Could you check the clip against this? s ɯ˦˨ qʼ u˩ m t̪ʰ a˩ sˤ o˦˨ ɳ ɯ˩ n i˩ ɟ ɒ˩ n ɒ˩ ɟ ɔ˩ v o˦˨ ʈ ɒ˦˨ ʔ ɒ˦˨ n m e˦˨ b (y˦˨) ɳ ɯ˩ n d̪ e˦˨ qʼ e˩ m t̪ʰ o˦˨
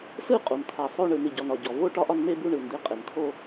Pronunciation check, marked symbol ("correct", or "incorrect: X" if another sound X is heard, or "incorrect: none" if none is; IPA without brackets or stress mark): incorrect: u˦˨